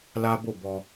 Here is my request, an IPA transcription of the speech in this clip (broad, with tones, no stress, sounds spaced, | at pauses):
l a˦ b o˦˨ b ɔ˧